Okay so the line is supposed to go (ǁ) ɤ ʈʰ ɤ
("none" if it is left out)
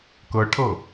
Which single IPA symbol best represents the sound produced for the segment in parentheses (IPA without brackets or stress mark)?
k